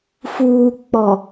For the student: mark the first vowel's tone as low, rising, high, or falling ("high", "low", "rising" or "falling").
low